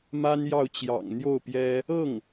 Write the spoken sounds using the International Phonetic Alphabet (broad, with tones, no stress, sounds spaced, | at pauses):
m a˥ n j ɑ˥˩ ʊ̯ t͡ɕ j ɑ̰˨˩ ŋ n̪ j o˥˩ ʊ̯ p j ɛ˥ | ɤ˥˩ ŋ